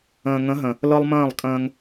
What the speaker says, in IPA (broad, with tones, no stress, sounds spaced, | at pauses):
ə̃ː˨ ŋ ə̃˨˦ ɦ ə̃˨ | l ɤ˦ lˠ m ə̃ː˦˨ lˠ kʼ ə̃ː˦ ŋ